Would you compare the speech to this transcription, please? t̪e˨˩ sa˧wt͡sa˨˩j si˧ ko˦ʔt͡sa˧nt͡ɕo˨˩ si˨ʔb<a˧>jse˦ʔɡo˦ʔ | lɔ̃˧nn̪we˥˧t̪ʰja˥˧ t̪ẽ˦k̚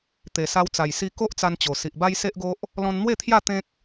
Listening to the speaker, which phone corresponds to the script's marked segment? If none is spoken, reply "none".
a˦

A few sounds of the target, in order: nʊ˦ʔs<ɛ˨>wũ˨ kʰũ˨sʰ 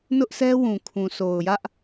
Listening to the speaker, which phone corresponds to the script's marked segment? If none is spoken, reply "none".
ɛ˦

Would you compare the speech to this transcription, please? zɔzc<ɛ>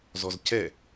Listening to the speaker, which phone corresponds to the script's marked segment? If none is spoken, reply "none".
ɛ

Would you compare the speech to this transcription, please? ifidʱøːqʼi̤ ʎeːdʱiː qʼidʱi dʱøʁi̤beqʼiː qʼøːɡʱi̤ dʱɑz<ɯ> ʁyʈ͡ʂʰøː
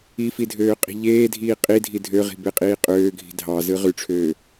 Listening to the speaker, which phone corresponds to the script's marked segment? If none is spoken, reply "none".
ɯ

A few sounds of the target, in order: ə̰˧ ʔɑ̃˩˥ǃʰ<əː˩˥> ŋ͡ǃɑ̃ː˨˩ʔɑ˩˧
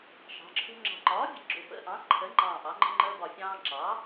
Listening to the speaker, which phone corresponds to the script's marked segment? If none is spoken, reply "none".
ə˩˥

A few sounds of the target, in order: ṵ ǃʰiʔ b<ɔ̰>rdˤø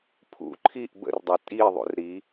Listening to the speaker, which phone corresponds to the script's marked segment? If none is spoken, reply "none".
ə̰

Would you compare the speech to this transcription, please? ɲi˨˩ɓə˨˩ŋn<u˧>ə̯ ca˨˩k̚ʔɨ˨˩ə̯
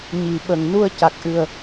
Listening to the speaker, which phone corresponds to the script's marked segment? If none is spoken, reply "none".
u˧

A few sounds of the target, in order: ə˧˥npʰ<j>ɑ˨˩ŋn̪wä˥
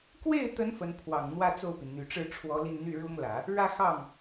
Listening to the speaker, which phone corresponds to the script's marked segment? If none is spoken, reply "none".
w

